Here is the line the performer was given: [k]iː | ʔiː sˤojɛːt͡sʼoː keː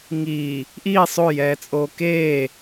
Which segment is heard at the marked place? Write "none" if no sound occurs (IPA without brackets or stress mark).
ŋ